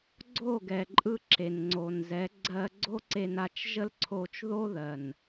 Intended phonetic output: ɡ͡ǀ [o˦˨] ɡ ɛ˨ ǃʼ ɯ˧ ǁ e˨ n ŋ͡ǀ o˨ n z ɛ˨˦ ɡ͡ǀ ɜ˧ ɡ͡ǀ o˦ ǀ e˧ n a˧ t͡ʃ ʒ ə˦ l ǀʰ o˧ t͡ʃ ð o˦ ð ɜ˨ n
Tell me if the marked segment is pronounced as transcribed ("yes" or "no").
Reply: yes